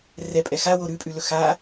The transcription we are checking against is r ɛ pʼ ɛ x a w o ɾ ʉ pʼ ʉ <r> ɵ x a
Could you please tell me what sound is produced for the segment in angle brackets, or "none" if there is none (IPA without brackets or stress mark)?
l